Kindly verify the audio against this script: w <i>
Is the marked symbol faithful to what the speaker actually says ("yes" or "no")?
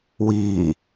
no